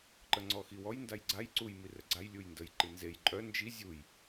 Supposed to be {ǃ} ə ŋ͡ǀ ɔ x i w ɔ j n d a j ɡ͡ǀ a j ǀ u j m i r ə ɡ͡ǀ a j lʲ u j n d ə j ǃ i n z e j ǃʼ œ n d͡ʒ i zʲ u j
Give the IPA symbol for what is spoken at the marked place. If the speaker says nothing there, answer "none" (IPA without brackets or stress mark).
ǃ